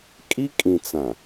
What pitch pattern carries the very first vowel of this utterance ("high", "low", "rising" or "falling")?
high